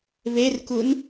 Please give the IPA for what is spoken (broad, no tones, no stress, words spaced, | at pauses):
βerkun